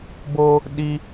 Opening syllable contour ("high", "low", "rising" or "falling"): high